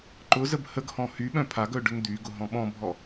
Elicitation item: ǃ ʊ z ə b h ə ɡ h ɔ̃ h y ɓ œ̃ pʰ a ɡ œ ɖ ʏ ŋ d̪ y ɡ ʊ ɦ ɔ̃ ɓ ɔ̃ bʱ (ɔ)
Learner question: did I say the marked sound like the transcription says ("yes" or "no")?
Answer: yes